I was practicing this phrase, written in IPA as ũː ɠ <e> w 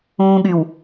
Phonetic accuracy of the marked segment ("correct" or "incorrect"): incorrect